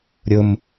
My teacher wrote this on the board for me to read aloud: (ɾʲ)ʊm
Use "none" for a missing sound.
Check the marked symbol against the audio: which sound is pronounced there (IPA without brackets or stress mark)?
ɾʲ